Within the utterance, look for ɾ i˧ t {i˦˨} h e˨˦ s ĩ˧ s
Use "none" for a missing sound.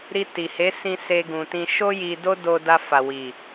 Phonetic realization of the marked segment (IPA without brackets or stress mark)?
i˨